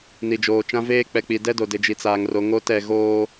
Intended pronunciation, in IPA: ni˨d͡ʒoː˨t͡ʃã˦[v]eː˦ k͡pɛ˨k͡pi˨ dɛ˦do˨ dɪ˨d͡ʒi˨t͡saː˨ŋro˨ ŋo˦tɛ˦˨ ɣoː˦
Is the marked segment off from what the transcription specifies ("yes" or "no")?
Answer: no